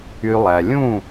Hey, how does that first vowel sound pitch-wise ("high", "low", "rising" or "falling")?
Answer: low